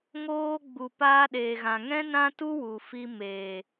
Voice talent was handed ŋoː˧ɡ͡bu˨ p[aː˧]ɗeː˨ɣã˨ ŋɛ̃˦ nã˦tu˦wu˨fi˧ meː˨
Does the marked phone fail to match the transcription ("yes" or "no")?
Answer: no